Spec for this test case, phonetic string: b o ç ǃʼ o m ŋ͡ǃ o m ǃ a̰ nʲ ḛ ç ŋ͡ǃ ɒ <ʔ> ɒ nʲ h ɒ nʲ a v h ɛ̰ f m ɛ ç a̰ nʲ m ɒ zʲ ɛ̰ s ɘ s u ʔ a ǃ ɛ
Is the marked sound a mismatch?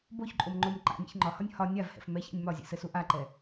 yes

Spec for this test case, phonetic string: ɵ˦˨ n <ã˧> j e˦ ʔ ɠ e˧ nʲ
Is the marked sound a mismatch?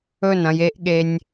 yes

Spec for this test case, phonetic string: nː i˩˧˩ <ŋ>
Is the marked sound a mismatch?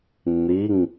no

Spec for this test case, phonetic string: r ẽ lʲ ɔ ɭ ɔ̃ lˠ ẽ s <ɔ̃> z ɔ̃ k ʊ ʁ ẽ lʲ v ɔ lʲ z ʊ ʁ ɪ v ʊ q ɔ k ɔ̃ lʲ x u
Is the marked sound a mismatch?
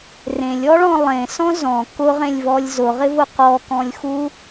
no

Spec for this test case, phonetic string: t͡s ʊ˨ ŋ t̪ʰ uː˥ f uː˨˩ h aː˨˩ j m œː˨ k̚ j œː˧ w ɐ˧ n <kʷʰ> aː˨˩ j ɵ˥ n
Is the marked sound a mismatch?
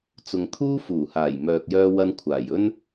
no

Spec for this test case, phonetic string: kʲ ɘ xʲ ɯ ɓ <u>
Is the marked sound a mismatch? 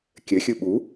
no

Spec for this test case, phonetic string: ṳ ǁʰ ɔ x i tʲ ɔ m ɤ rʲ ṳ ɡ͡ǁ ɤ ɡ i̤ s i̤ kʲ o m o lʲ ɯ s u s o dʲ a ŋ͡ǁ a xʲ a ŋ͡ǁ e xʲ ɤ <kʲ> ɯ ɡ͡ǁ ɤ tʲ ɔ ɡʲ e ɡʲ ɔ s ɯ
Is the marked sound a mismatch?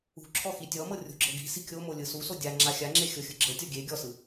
yes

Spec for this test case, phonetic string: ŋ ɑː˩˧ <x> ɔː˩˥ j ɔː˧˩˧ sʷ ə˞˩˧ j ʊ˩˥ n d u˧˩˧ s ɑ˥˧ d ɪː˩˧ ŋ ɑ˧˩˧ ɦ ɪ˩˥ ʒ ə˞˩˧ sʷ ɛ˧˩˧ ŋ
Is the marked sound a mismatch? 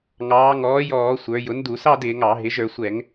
yes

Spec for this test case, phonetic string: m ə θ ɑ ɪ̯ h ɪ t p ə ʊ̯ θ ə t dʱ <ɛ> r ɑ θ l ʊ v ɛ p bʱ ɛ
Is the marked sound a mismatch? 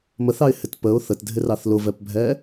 yes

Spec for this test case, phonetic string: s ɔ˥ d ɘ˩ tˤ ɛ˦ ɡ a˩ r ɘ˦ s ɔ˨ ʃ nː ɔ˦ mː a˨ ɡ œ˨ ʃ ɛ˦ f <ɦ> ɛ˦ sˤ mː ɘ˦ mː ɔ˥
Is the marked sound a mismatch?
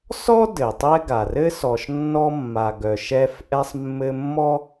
yes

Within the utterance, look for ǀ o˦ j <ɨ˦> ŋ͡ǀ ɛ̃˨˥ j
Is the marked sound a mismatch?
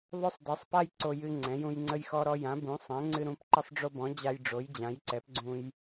no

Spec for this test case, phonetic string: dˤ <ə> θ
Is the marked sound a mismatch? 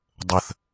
no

